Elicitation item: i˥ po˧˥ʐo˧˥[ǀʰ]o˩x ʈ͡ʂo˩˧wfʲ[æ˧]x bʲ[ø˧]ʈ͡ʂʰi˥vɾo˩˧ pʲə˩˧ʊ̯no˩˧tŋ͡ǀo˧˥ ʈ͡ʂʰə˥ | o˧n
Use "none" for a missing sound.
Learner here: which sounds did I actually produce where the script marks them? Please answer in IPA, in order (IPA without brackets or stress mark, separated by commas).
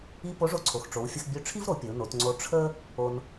ǀʰ, ə˧, ø˧˥